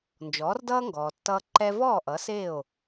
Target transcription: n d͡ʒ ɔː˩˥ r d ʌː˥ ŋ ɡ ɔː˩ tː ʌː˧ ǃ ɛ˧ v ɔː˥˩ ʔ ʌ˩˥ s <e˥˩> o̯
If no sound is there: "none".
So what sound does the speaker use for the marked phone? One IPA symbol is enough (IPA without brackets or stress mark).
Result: e˥˩